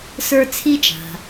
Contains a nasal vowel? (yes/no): no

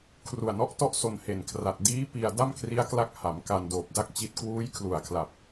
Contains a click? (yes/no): no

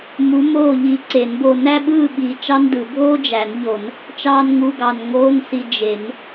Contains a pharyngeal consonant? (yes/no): no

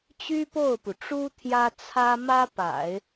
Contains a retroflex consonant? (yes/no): yes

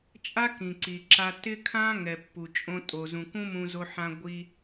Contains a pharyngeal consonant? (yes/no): yes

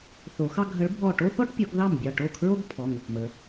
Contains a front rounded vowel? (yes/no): no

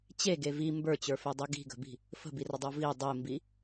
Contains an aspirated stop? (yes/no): no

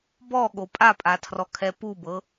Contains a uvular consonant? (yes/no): no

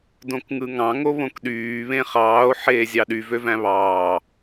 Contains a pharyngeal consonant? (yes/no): yes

